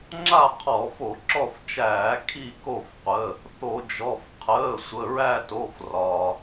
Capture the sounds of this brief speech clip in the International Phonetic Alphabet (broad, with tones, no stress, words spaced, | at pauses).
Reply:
ŋ͡ǁa˦˨ qʰɔ˧˩˧fo˧˩˧ǁɔ˦˨ft͡ʃæː˧˩˧ kʰi˦˨ko˦˨fqʷə˩˧˩ | θo˧˩˧d͡ʒɔ˩˧˩f qʰəː˩˧˩sʷə˩˧˩ɹæ˦˨to˩˧˩f rɒ˩